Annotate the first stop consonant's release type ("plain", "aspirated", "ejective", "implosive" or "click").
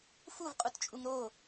ejective